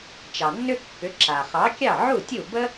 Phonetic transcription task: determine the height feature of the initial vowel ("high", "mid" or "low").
low